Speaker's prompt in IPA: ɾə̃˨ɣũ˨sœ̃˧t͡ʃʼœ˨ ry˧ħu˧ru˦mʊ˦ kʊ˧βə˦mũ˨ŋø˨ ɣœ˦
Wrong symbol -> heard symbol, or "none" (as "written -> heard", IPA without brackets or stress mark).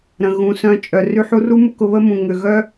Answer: none